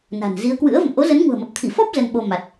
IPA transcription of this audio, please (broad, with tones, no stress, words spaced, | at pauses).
na̤˨˩n zi˨˦ə̯kwɨ̰˧˥ə̯ və̰˧˨mʔo˨˦zə˨˦n ŋṳ˨˩ə̯mə˨˩p̚t̪ʰi˧˩fɔ˦˥p̚ zə˧nɓo˧ma˨˩t̚